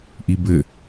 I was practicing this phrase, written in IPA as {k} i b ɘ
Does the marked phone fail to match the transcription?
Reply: yes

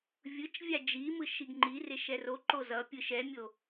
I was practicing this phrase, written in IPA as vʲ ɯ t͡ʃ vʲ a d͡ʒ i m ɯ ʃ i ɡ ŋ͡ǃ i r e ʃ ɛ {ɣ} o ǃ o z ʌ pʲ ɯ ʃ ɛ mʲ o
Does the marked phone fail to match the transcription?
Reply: yes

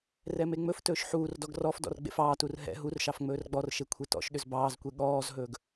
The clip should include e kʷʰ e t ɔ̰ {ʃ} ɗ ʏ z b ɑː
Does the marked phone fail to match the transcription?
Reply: no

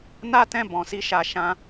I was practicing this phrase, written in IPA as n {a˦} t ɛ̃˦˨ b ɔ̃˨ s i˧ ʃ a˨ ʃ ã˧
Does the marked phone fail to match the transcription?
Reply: no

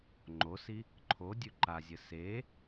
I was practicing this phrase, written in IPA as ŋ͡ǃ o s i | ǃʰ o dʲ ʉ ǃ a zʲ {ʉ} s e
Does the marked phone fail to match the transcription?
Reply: yes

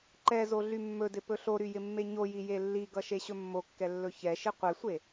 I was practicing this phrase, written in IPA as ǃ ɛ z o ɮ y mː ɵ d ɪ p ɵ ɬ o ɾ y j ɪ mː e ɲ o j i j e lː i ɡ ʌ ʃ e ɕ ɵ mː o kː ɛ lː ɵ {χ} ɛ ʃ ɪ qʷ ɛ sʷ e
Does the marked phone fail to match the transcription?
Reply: yes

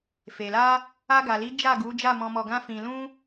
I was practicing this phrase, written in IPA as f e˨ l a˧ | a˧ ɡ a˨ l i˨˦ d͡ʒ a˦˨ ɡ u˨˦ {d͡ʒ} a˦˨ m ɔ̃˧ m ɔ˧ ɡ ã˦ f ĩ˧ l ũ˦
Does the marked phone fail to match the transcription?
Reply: no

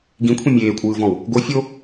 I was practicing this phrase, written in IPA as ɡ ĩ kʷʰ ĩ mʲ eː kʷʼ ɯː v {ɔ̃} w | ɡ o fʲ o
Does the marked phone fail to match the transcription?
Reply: no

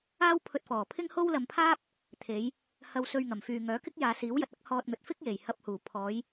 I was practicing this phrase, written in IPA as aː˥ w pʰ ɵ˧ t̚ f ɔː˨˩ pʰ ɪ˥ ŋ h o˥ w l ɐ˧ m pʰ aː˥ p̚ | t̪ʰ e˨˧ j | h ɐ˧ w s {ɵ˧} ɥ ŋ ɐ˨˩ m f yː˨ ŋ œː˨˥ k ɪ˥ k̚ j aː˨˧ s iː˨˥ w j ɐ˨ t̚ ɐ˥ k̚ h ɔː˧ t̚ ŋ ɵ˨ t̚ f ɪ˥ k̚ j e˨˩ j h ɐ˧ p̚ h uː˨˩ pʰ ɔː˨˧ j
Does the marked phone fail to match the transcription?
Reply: no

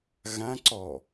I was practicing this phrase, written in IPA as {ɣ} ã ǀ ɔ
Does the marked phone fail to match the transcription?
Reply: no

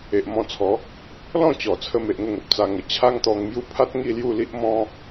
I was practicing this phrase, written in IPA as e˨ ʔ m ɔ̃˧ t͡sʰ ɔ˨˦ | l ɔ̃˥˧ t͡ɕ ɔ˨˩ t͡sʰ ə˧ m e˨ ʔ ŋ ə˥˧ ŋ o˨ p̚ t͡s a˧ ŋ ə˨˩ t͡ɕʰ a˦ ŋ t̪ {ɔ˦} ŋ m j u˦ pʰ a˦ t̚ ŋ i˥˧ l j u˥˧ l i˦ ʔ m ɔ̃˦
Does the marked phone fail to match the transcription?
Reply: yes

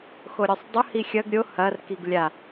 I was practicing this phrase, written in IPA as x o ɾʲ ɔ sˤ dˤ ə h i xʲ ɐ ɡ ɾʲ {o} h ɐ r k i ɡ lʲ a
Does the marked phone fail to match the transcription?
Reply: no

